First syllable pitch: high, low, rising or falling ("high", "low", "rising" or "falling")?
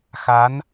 rising